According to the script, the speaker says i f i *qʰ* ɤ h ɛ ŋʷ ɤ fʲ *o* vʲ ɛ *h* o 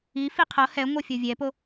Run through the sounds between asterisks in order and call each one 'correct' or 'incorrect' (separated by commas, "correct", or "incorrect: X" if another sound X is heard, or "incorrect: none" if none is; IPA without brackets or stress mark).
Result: correct, correct, incorrect: p